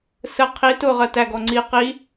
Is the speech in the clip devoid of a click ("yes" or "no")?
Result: no